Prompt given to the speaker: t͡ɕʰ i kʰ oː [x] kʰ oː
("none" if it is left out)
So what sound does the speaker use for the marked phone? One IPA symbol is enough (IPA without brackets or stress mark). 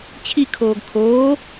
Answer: ɡ